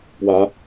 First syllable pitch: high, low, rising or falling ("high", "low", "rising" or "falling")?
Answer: rising